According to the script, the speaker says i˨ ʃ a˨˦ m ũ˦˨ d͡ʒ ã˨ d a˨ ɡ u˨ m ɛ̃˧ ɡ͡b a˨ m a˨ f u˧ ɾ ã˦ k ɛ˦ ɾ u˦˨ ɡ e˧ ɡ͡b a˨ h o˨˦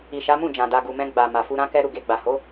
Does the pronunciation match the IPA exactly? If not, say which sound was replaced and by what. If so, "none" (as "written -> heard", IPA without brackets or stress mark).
none